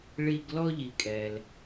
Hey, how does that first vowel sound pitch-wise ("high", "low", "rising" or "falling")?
high